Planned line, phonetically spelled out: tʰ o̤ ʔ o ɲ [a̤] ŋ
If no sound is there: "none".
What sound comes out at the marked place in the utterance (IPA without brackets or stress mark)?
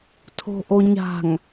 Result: a̤